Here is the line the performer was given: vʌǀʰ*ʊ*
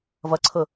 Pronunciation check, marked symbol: correct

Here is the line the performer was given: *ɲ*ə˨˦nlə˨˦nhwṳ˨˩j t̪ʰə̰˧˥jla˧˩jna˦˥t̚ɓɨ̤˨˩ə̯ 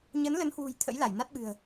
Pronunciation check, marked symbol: correct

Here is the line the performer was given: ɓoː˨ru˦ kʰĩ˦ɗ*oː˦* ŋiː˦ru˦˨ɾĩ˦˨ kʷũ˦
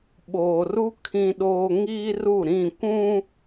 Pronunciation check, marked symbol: correct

